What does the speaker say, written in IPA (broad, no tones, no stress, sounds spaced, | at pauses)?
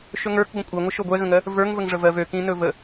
ʃ ɵ ŋ ə˞ k ɡʷ ə̃ kʷʼ ɜ ŋʷ ə ʃ o ɡʷ ɛ ɣ ə̃ ŋ ɜ | v ə˞ ŋ v ə ŋ ʐ ə v ɜ v ø k ĩ n ɵ v ə